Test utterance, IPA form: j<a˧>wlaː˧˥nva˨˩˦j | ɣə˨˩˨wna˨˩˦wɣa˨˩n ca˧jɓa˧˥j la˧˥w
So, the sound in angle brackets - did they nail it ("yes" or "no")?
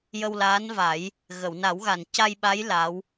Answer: no